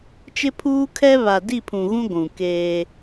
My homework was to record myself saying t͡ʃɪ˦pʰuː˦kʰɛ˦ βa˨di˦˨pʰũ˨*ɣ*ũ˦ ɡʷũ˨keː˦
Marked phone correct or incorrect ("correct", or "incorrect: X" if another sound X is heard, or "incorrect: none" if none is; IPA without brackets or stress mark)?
correct